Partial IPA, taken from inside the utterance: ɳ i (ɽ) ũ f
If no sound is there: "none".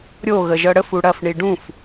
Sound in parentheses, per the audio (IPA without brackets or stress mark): ɖ